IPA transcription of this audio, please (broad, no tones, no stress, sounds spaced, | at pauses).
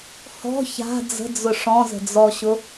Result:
h ɔ̤ ç a̤ d͡z ə̤ d͡z ʊ ʂ ɔ̃ z ə̤ d͡z ɔ ɕ ʊ